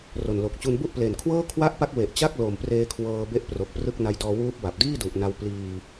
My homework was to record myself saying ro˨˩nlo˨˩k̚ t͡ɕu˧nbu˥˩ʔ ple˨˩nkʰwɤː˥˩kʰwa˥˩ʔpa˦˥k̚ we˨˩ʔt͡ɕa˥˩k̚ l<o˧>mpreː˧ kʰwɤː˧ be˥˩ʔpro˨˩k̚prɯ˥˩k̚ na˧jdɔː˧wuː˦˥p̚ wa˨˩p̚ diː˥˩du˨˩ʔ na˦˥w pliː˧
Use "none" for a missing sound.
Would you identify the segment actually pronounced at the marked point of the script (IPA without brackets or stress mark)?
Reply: o˨˩